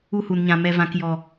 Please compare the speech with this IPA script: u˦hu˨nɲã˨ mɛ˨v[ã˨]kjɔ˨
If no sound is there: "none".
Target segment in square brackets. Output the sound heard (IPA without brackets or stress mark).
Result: ã˨